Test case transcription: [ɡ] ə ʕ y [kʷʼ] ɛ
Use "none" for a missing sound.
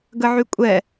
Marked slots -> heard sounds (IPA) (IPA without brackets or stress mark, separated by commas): ɡ, kʷʼ